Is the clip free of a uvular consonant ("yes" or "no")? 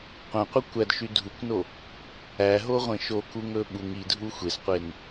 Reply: no